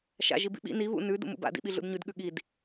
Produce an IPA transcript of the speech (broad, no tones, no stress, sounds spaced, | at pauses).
ʃ a̰ ʒ i b ḭ ɓ ḭ n i β ṵ n ʉ d ṵ m ṵ b a̰ d ḭ ɓ i ɮ ṵ d ɲ ʉ d ɠ ʉ ɠ i d